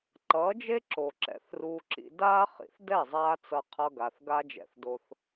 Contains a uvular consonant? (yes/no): yes